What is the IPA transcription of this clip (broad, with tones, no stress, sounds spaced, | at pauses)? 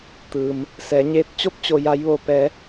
t̪ ɯː˩ m | s ɛː˩˧ ɲ eː˧˥ t̚ t͡ɕ o˧˥ p̚ t͡ɕ o˩ j a˩˧ j ʋ oː˩ p ɛː˩˧